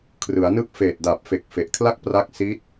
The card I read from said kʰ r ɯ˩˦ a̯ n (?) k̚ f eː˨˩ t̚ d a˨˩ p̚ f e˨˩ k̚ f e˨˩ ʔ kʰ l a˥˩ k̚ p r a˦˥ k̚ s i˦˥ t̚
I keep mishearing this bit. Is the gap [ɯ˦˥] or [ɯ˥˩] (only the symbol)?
ɯ˦˥